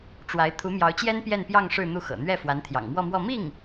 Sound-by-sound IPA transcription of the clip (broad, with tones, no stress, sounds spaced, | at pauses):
ʈ͡ʂ w a˧˥ ɪ̯ t̪ʰ u˧˥ m j ɑ˧˥ ʊ̯ t͡ɕ j ɛ˥ n p j ɛ˥˧ n p j ɑ˥˧ ŋ ʂ ɻ̩˥˧ n̪ u˥˩ x ɤ̰˨˩ n̪ ɥ ɛ˥˩ f w a˧˥ n t̪ʰ j ɑ̰˨˩ ŋ m w ɔ˥˧ m w ɔ˥˧ m i˥˩ ŋ